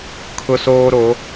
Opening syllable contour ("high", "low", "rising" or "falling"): high